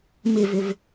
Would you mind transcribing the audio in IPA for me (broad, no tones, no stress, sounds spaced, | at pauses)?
m ɪ v ʏ v